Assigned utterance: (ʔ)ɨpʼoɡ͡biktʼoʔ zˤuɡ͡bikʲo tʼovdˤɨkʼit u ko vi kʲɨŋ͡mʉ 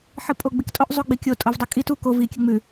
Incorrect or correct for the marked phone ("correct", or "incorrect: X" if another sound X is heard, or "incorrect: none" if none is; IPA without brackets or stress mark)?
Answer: incorrect: ħ